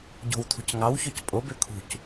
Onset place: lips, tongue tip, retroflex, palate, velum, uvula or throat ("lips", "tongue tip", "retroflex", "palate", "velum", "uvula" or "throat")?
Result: palate